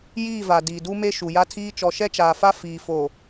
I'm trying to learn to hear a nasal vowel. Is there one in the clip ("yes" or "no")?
no